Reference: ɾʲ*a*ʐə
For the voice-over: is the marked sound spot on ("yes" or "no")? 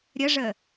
no